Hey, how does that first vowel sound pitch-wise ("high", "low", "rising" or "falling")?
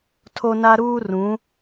high